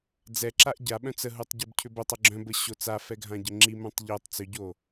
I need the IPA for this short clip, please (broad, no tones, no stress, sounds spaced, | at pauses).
d͡z ɛ ǁ a ʔ ɟ a ɓ œ̃ t͡s ə ɦ u tˤ ɟ ɘ b cʰ ʏ b ə tˤ ə ɡ͡ǁ œ̃ b ə ɕ o t͡s a f ɛ ɡʱ ã ɟ ə ŋ͡ǁ i m œ̃ tˤ ʎ o tˤ t͡s ʏ ɟ o